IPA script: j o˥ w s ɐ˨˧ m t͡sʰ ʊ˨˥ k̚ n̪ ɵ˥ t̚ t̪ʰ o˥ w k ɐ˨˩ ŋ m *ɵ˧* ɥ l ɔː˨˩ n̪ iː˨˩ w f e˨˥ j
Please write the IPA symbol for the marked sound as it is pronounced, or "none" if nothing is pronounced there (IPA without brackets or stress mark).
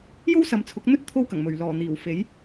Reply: ɵ˨˩